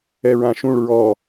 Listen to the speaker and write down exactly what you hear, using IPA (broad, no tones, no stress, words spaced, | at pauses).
ɛɹãʃũɭ ɹɔ